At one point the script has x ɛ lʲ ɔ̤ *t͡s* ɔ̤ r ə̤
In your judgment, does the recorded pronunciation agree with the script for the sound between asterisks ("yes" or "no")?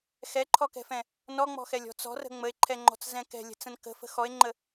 yes